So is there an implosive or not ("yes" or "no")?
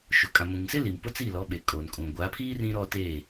yes